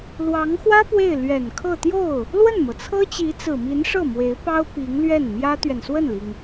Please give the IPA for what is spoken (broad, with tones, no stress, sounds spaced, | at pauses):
l w ɑ˧˥ ŋ x w ä˥ p w e˥˩ ɪ̯ l ɥ ɛ˨˩ n kʰ ɤ˥˧ t̪ j o˥˩ ʊ̯ | l w ə˥˩ n m ɤ˩ t͡sʰ ɤ˥ t͡ɕ i˧˥ t͡s ɹ̩˨˩ m i˧˥ n ʂ ɤ˥˩ m w e˧˥ ɪ̯ p ɑ˥ ʊ̯ p i˧˥ ŋ l ɥ ɛ˥˩ n m j ä˥ t̪ ɥ ɛ˨ n s w ə˥˩ n l i˩ ŋ